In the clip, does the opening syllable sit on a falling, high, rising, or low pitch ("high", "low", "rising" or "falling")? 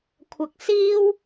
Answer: low